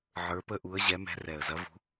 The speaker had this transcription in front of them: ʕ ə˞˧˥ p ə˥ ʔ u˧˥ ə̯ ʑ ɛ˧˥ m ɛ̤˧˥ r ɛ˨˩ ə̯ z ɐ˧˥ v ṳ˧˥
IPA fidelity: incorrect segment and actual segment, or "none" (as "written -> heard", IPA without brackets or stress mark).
none